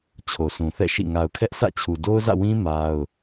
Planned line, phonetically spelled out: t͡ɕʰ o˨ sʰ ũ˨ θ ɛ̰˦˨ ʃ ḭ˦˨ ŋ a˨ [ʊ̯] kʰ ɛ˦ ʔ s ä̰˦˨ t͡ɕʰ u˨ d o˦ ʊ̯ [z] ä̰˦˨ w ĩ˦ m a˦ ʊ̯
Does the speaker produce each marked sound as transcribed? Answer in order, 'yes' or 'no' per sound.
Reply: yes, yes

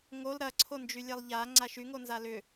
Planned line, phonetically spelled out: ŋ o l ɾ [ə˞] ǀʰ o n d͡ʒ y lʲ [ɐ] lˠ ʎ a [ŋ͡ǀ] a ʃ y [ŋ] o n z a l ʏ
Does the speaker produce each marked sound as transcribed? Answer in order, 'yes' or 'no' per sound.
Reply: no, no, yes, yes

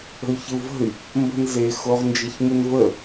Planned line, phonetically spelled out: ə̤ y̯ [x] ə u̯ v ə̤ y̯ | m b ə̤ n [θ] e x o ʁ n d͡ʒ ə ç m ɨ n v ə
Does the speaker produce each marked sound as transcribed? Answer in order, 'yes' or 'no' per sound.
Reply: no, no

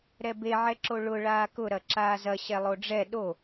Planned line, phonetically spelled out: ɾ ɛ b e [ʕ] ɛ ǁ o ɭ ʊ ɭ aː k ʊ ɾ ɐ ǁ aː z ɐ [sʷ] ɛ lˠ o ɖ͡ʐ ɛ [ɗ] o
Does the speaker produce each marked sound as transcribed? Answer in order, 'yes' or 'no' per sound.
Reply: yes, no, yes

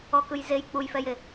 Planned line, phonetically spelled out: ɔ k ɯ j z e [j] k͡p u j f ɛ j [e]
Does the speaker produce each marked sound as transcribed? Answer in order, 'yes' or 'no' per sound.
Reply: yes, yes

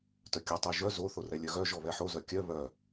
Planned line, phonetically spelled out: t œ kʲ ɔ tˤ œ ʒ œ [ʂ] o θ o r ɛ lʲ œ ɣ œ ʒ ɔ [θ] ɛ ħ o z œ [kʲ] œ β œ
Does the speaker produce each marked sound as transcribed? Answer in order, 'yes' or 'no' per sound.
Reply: no, no, yes

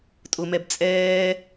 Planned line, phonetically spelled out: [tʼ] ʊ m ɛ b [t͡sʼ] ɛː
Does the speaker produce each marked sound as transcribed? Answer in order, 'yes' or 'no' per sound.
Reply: yes, yes

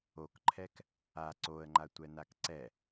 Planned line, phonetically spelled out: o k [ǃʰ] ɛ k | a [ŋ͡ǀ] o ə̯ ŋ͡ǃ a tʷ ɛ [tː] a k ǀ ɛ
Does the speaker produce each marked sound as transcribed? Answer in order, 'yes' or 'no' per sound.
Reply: yes, no, no

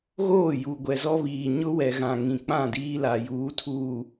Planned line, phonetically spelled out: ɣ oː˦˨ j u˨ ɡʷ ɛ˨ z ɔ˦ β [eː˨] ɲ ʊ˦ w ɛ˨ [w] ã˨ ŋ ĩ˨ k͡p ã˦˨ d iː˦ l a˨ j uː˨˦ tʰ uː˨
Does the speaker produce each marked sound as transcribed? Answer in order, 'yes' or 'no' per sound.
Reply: no, no

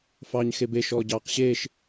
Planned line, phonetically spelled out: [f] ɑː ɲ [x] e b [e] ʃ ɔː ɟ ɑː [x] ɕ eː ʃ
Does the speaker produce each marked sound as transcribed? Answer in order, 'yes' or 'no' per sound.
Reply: yes, yes, yes, no

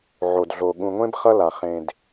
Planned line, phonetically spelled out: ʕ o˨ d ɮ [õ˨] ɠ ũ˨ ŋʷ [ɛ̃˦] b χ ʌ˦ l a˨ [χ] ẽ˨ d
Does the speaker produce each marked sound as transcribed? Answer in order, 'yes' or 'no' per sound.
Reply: no, no, yes

